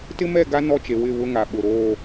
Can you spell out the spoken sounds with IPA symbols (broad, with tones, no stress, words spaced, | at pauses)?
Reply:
tɪ˦mɛ˦˨ ɡa˦ nɔ˦t͡ʃe˨ wɪ˦˨βʊ˦ŋa˨ ɓʊ˨ɾoː˦˨